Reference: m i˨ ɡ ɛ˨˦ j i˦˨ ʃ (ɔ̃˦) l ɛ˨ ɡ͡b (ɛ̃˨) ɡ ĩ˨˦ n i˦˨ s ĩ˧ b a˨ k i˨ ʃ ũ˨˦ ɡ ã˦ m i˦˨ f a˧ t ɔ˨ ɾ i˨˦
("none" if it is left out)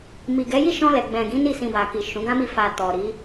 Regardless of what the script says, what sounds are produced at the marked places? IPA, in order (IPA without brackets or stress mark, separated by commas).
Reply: ɔ̃˧, ɛ̃˨